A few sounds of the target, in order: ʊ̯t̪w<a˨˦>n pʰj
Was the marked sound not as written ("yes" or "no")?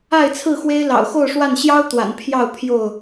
yes